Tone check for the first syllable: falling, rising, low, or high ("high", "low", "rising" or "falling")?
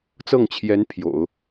falling